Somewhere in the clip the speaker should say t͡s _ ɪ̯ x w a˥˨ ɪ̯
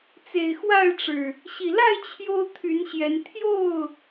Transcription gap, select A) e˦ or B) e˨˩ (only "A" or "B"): B